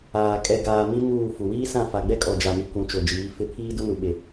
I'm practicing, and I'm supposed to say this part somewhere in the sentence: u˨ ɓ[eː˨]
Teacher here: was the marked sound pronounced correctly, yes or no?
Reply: no